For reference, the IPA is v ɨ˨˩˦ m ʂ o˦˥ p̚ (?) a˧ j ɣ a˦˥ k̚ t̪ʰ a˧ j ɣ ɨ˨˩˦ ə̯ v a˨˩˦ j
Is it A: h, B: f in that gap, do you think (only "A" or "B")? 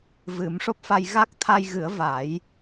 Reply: B